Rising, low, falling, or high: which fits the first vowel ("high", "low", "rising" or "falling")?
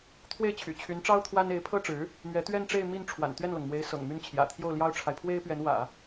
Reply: falling